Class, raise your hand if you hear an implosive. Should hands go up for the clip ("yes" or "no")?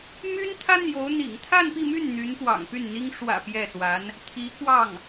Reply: no